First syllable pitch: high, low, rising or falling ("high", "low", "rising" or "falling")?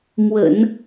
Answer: low